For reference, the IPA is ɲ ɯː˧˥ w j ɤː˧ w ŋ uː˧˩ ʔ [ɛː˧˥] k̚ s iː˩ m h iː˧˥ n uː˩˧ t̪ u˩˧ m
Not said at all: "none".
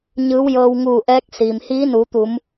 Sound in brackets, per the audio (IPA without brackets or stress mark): ɛː˧˥